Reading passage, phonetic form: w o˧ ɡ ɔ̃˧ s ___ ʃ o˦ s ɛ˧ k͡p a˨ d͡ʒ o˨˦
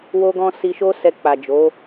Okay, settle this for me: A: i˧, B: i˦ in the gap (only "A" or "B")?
A